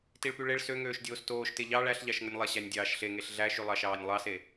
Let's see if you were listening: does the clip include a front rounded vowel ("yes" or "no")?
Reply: yes